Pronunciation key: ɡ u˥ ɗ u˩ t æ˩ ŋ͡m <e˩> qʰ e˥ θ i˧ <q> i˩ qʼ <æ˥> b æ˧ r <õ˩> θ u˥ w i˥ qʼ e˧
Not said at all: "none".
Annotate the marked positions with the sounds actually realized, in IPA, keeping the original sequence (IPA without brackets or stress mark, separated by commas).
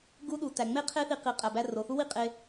e˥, q, æ˩, o˩